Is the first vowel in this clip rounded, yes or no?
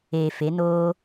no